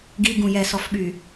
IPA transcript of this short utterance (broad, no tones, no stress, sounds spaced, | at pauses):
ɡ i ɡ ũ j ɛ s ɔ f ɓ y